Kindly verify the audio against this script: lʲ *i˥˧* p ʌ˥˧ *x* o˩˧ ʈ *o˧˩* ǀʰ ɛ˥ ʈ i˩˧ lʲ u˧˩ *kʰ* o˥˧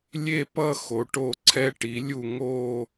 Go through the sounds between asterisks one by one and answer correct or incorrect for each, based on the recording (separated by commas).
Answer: incorrect, correct, correct, incorrect